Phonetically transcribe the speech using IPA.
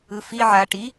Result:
ɯ f i ʕ a ʈ i

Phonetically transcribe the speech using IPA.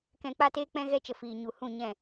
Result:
k ɛ̃˧ k͡p a˦ t eː˦ k͡p ɛ̃˦ ɣ ɛ˦ t͡ʃ ə˧ f iː˧ ɲ u˨ h ũ˦˨ ɲ ɛ̃˦˨

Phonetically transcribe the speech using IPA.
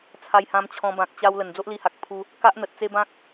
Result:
t͡sʰ a˧ j h ã˧ m t͡ɕʰ ɔ̃˧ b ã˨ k̚ t͡ɕ a˧ w l ə˨˩ n d͡z o˦ ʔ l i˧ h a˨ k̚ pʰ u˧ | k a˦ ʔ n̪ ə˨ t̚ t͡s e˦ b ã˦ k̚

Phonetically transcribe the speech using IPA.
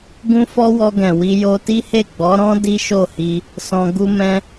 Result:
ɡ ũ˦ f ɔ˦ w ɔ˧ ɡ ɛ̃˨ w i˧ j o˧ t i˦ h e˦˨ ɡ͡b ɔ˨˦ ɾ ɔ̃˦ d i˦ ʃ o˦˨ h i˧ | s ɔ̃˧ ɡ u˧ m ɛ̃˧

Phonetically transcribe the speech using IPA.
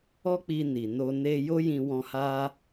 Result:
ɔ˦ k͡p i˧ n i˨ n o˧ n e˧ j o˦ j ĩ˧ w ɔ̃˧ h a˦

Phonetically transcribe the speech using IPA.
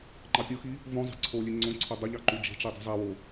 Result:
ŋ͡ǃ ɑ pʲ o x i | v õ zˤ e̤ ǀʰ o lʲ e ŋ͡ǀ õ ǀʰ ø dˤ u ʎ ɑ ǃ u d͡ʒ e̤ t͡ʃ i dˤ i̤ zˤ æ w o

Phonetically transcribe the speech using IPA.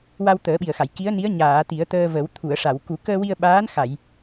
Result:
w a˧ w t̪ əː˨˩˦ ɓ i˨˩ ə̯ x a˨˩˨ j k i˧˥ ə̯ n i˧˥ ə̯ ɲ aː˨˩˨ t̪ i˨˩˦ ə̯ t̪ əː˧ v ə˨˩˦ w t̪ʰ u˨˩˨ ə̯ ʂ a˨˩˨ w k u˨˩˦ k əː˧ w i˧ ə̯ ɓ aː˧˥ n x a˨˩˨ j

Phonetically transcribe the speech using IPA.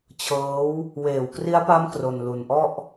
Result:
t͡ɕʰ ɤː˦˥ w | w eː˨˩ w k r i˦˥ a̯ p a˦˥ m k r o˧ n l u˧ n ʔ ɔ˥˩ ʔ

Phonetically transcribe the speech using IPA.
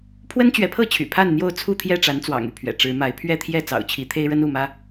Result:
pʰ w ə˦ n t͡ɕ ɥ ɛ˨˦ pʰ ɤ˥˨ t͡ɕʰ y̰˨˩ pʰ a˥˨ n n̪ j o˥˨ ʊ̯ t͡sʰ u˥˨ t̪ʰ j ɛ˥˨ ʈ͡ʂ a˨˦ n t͡s w ɑ̰˨˩ ŋ y˥˨ pʰ ɥ ɛ̰˨˩ ʈ͡ʂ ɻ̩˨˦ m a˨˦ ɪ̯ pʰ ɥ ɛ˥˨ t̪ʰ j ɛ˥˨ t͡s ɑ̰˨˩ ʊ̯ t͡ɕʰ i˨˦ t̪ʰ e˦ ɪ̯ ɻ ə˦ n u˥˨ m ä˦

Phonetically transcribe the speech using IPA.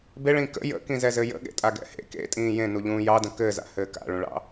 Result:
b e ɭ ĩː k ə̰ j ə̰ k ĩ z ɛ z ɘ j ə̰ ɠ ḛ tʼ a ɡ ɛ̰ h ḛ k ḛ tʼ ĩː j ẽ n u ʎ ũː j ɑ d ə̃ k ɘː z a̰ h ɘː k a̰ ɭ ũ ɭ ɑ̰

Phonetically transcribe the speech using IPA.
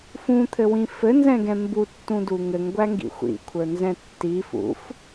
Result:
f ũ t̪ʰ ɘ w ĩ f ɘ n z ɛ̃ ɡ ɛ̃ m b u tː ũ d u ŋ ɘ ŋ ɡʷ æ ŋ ɡ ḭ xʷ ḭ kʷʰ ə˞ n z ɛ̃ tː i f ṵ f

